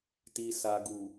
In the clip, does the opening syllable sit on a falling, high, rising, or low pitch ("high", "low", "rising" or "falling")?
low